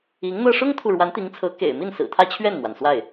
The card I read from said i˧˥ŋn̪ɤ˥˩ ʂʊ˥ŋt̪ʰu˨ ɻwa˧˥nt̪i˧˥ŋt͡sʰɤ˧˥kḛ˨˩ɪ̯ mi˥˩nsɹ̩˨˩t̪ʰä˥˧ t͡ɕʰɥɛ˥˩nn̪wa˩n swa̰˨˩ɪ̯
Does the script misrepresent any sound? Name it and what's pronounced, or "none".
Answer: a̰˨˩ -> a˥˩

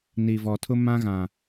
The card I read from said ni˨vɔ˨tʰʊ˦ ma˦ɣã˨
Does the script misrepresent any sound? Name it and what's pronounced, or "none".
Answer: a˦ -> ã˦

